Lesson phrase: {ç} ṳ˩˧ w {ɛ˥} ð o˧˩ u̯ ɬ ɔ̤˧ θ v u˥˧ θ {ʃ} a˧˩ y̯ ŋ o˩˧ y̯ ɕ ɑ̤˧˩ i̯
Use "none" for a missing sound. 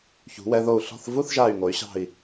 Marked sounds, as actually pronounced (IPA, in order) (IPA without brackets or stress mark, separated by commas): ç, ɛ˧, ʒ